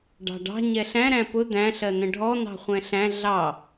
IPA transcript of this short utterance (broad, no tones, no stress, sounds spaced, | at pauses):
ɖ ɑ̤ ɖ ɑ̤ ɲ ɛ ɬ æ̃ ɾ æ̃ p ʊ d̪ æ̃ ɬ ɜ n̪ ə̃ ɖʱ ɔ n̪ ɑ̤ χʷ ɛ̃ ɬ æ̃ ɮ ɑ